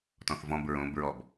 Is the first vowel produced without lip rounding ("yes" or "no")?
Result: no